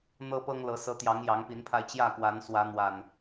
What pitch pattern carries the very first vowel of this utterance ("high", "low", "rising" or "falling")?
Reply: high